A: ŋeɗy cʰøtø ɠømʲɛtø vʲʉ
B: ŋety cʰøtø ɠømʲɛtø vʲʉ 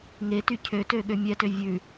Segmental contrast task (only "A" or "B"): B